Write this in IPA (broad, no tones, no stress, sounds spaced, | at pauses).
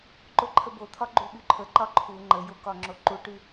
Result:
ǃ o ǃʰ ə b o t̪ʰ ɒ ɡ͡ǃ u ɓ y ǃʰ ə ǃ ɒ ǃʰ u ŋ͡ǃ ə j o k ɒ ŋ͡ǁ o ǃ u ʈ y